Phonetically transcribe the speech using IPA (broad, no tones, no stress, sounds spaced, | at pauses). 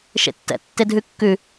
ʃ ḛ tː ɛ̰ tː e dʱ ʉ kː ʉ